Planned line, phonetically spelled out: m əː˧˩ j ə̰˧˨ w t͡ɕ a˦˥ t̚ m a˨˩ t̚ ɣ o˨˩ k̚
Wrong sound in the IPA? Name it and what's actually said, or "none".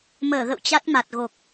j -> ɣ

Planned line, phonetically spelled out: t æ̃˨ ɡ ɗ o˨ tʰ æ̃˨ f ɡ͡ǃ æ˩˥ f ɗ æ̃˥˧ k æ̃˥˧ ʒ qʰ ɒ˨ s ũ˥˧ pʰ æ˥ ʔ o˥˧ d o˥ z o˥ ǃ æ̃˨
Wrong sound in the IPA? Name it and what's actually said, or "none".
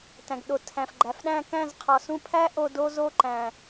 ʒ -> z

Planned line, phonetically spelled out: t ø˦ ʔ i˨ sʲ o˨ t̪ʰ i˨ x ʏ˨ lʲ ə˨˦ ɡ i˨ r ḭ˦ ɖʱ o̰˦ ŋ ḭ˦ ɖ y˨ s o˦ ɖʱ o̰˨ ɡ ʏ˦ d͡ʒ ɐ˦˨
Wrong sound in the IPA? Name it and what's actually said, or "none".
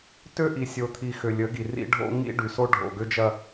none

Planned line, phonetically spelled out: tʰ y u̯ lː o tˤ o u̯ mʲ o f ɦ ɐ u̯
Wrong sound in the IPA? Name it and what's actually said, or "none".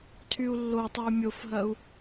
none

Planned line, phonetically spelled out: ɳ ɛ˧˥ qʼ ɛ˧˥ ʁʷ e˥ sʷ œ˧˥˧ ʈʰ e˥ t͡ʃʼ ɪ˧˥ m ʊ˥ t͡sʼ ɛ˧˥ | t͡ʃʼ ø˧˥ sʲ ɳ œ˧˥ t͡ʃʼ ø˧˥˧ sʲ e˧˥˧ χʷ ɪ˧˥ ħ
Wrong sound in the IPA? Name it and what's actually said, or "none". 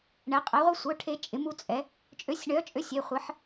ʊ˥ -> u˥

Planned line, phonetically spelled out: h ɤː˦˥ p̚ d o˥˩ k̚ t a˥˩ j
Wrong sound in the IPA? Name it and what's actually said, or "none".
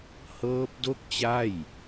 t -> t͡ɕ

